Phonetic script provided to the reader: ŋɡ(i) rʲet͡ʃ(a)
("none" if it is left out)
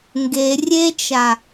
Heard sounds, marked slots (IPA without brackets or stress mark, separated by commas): e, a